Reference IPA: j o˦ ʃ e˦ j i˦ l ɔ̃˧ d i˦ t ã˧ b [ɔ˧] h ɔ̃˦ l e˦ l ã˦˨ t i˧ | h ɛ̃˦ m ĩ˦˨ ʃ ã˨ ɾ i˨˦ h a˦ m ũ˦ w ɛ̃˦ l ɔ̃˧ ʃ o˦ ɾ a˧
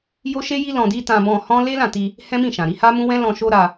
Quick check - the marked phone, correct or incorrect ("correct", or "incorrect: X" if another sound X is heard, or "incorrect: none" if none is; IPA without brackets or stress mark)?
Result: incorrect: ɔ̃˧